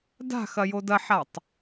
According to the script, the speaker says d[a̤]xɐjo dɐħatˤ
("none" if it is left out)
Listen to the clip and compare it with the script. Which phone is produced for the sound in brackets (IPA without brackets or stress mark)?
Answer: a̤